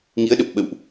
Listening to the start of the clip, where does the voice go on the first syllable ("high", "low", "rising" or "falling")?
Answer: rising